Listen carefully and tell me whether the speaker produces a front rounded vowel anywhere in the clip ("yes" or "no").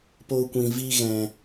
no